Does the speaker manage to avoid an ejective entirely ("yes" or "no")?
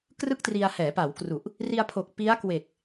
yes